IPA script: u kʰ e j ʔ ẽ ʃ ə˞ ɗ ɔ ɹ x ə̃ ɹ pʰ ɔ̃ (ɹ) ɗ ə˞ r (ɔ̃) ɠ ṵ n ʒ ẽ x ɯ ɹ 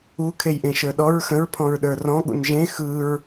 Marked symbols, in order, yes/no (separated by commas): yes, yes